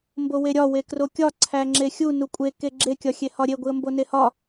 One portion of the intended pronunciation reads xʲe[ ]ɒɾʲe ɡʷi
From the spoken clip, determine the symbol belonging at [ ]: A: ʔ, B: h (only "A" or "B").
B